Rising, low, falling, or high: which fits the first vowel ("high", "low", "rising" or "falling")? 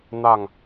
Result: falling